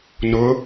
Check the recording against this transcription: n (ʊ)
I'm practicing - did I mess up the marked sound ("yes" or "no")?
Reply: no